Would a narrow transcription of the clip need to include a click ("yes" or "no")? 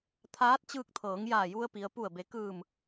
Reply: no